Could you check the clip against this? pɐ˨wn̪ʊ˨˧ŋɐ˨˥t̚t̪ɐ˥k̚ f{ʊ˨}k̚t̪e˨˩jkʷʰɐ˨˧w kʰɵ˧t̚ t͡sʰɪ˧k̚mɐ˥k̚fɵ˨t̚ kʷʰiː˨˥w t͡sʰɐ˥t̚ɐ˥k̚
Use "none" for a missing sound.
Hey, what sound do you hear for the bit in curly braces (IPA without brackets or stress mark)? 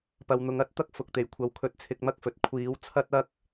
ʊ˨